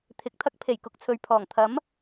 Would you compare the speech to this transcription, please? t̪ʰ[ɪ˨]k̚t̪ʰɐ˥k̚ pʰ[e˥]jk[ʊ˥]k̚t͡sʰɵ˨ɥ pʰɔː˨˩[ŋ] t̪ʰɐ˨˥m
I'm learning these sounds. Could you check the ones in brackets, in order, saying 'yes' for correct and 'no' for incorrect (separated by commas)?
no, no, no, yes